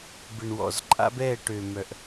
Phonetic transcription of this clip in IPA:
b ɪ˨ ɳ w ɔ̰˨ z ǃʼ a̰˦ b ɛ˦˨ ʈ ø˨ m œ˨ ʔ

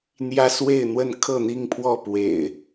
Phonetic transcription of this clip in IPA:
n̪ j ä˦ s w e˥˨ ɪ̯ n̪ w ə˥˨ n kʰ ɤ˥˨ n̪ i˥˨ ŋ pʰ w ɔ˥˨ p w ḛ˨˩ ɪ̯

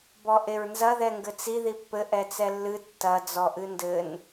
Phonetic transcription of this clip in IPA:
b ɔ ʔ e ɹ n z ɐ ð ɛ ŋ ɡ ɘ t͡s i ð i pː ɘ ʔ ɛ t͡s ɛ lː ɨ tː ɐ d͡z ɔ ʔ ɨ n d ɘ n

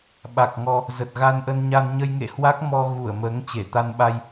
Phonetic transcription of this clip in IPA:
ɓ a˨˩ k̚ ŋ ɔ˧ | z ə˨˩ t̚ ɣ a˧ n ʔ ə˧ n ɲ a˧ n ɲ ə˧ j ŋ ḛ˧˨ h w a˦˥ k̚ m ɔ˧ ɣ u˧˩ ə̯ m əː˨˦ ŋ t͡ɕ e˧˩ t̪ a˧ n ɓ a˧ j

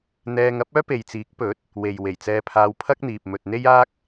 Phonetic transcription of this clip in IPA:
n̪ ɛː˧ ŋ ɐ˥ p̚ œː˥ p e˨ j t͡s iː˨˥ k̚ p ɵ˨˥ t̚ | w e˨ j w e˨˩ j t͡s ɛː˧ pʰ aː˧ w pʰ ɐ˥ k̚ n̪ iː˨ p̚ m ɵ˨ t̚ n̪ e˥ j aː˥ k̚

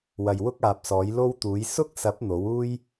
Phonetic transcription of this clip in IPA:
w ɐ˨ j w ʊ˥ k̚ aː˨ p̚ s ɔː˨˥ j l o˥ w t̪ uː˨˥ j s ʊ˥ k̚ s ɐ˨˥ p̚ n̪ o˨˥ w uː˥ j

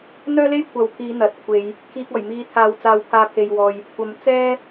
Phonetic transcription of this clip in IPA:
n̪ œː˥ l e˥ j kʷʰ ɐ˨ w pʰ iː˨˧ n̪ ɐ˨ t̚ kʷʰ e˨˧ j | kʰ iː˨ k̚ ɔː˨˩ j m iː˨˧ t̪ʰ aː˨ w t͡s aː˨ w pʰ aː˨ pʰ e˨ j w ɔː˨ j | kʷ ɐ˨˧ m t͡s ɛː˥

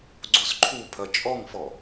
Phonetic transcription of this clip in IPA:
ɡ͡ǀ o s ǃʰ u pʰ ɐ t͡ʃʼ ɔ ŋ f ɔ

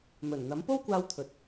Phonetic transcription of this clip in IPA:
m ɵ˨˩ n n̪ ɐ˨˥ m p o˥ w kʷ aː˧ w t̪ʰ ɵ˨ t̚

